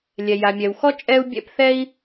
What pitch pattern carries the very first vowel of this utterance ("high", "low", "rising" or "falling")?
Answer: low